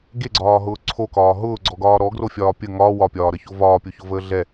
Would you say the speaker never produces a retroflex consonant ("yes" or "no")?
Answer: yes